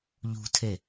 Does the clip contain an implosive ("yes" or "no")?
no